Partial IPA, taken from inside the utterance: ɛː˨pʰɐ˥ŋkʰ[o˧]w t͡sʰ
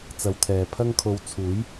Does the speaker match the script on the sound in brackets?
yes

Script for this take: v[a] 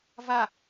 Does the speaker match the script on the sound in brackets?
yes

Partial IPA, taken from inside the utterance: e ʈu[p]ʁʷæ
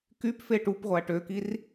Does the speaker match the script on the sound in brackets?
yes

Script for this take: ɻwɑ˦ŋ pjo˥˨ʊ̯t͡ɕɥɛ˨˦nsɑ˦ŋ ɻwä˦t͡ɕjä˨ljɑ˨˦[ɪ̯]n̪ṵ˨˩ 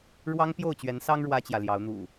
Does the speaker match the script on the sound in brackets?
no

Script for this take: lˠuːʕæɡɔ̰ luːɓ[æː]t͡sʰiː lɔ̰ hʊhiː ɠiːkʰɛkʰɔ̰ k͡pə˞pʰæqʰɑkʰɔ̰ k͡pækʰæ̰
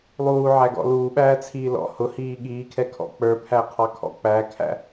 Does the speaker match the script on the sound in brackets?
yes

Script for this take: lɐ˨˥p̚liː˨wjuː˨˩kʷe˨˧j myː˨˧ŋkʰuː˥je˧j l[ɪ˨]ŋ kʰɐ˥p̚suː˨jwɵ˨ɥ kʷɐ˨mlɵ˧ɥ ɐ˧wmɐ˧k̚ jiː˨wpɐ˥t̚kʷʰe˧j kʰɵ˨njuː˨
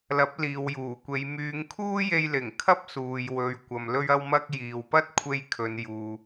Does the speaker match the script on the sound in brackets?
no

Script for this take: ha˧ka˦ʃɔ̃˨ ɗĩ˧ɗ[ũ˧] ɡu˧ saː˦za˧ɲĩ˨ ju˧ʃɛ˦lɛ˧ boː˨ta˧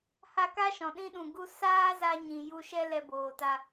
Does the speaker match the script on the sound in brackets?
no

